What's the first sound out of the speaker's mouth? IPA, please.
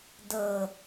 d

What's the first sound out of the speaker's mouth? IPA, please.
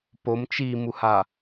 p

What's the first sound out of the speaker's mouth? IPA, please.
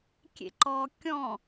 kʲ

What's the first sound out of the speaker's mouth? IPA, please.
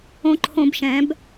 õ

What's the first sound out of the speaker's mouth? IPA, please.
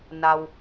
n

